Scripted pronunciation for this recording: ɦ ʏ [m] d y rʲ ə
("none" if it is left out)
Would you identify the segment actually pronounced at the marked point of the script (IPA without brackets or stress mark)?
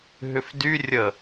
f